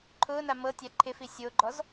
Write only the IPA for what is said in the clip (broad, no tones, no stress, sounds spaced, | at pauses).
ǃʰ ʊː n a m ɤ tʲ a ǃʰ ɪ f i sʲ o ɡ͡ǃ ɔ z